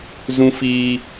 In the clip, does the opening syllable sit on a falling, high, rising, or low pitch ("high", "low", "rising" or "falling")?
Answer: high